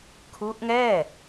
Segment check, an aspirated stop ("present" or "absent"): present